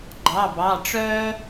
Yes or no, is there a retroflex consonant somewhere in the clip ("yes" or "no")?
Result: yes